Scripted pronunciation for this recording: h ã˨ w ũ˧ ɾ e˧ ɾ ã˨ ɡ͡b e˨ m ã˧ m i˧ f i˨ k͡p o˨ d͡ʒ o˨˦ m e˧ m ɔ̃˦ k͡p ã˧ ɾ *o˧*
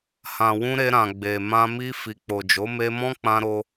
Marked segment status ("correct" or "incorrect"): correct